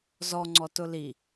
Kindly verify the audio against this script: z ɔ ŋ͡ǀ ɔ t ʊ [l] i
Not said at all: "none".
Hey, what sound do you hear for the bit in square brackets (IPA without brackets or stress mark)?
l